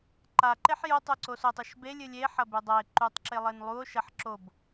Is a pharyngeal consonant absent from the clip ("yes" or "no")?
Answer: no